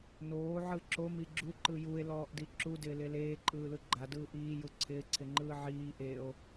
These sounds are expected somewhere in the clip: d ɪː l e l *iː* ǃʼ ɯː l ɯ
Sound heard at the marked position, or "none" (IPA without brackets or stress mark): eː